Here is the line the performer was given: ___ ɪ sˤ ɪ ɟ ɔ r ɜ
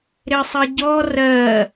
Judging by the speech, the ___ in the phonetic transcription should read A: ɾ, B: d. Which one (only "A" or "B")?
A